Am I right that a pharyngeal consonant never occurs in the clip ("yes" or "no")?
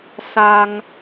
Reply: yes